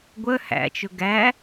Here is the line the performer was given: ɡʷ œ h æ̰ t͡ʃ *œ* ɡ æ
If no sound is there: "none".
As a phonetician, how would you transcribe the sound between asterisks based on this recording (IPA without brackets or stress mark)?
ɵ